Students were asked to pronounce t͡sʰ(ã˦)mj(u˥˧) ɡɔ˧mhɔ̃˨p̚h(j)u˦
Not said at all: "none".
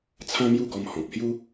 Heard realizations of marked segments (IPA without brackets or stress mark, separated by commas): ã˦, u˦, j